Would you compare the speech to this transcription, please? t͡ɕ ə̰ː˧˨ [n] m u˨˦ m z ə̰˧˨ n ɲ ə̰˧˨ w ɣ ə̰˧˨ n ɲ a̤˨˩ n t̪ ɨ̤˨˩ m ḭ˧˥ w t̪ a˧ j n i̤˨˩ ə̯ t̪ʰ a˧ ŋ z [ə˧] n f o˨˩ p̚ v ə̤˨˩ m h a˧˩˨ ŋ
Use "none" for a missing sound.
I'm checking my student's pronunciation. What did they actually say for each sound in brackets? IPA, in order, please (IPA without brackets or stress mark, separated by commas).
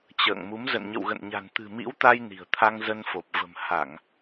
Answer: ŋ, ə˧